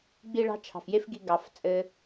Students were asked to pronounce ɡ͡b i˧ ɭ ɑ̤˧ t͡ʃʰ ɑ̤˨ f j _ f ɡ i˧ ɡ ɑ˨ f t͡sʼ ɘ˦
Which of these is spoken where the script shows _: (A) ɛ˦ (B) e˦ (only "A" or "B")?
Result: B